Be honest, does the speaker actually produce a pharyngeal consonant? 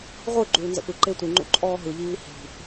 no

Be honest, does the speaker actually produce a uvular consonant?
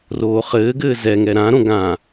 yes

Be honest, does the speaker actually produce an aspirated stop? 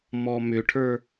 yes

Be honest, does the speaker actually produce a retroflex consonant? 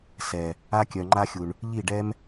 yes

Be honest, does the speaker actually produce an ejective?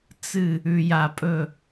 yes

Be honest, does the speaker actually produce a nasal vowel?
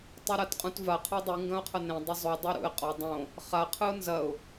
yes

